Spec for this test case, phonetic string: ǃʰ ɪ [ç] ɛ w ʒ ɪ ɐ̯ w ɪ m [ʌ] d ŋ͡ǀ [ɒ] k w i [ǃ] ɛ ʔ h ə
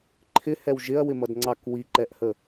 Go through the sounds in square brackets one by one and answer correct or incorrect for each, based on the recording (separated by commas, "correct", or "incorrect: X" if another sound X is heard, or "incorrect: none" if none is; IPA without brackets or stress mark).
incorrect: h, correct, incorrect: ɑ, correct